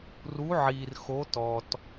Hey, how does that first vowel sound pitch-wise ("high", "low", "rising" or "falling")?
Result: rising